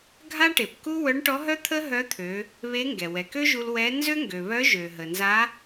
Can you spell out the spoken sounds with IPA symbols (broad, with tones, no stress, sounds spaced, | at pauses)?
ɡʱ a˥ ʈ e˩ p k u˥ w œ˧˥ ɳ ʈ ɔ˧˥ ɦ œ˥ t̪ʰ ə˥ ɦ œ˧˥ t̪ʰ ø˩˧ | β e˧˥ ŋ ɡ ɛ˩ w ɛ˩ k ø˥ ʒ u˧ l w ɛ˧˥ n z ø˥ ŋ ɡ ø˩ β œ˧˥ ʒ ø˩ ɦ ə˩ n z a˧˥